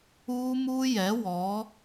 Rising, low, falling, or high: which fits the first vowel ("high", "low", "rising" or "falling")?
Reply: high